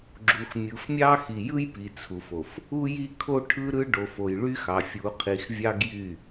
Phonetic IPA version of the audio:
ɡ͡ǁu˨xmʲɯ˨fmʲɑ˦ xi˨jɯ˦jpi˨ t͡sʰu˨fo˨f | u˦ji˦ kʰo˦ʈʰɯ˦ɾɯ˦ ɖo˨fo˨jɭy˦xɑ˨ fʲu˨˦qʰi˨x vʲɑ˦ɡjy˦˨

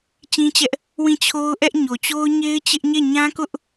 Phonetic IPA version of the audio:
t͡ɕĩ˦t͡ɕɛ˦ʔ | wĩ˦˨t͡ɕʰo˦ʊ̯ʔɛ˦ʔ ɲo˨t͡ɕo˦ʊ̯ ɲe˦ɪ̯t͡ɕɪ˦ʔ ɲe˦˨ɲã˦kʊ˦ʔ

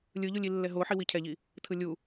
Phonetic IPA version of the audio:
lʲɯʎulʲilːɛ ɦoħi wicʰɛʎi | tʰɯlʲu

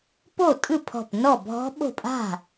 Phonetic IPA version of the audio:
po˥˩tʼɯ˥˩pʰɔ̤˧˩p nɔ˥˩bʱɔ̤˦˥ɓo̤˥˩ pʼa̤˥˩

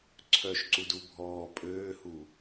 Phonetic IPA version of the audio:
ǀʰœʃǀudu bʱɔː pʼøːhu

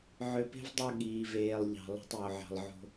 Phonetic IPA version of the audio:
ʕø˨pe̤˦v dˤu˦˨ ɠiː˨veː˨lˠʎɑ̤˨ lˠo̤˦tˤjo˨ʕɑ̤˨lˠʕo̤˦

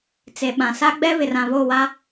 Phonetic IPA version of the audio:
t͡se˨ɓã˨sa˦ ɡ͡bɛ˦βɪ˨r ã˨βo˦˨wa˦

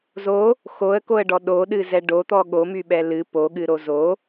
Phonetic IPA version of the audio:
zo | xoə̯koə̯ɖɔ ɗoɗɨzɛ ɖot̪ɔ ɠomyɓɛ lɨ poɠɨɾo zo

